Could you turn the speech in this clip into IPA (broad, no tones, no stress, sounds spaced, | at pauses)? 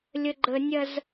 lʲ ə ɡ͡ǃ ə nʲ ɐ z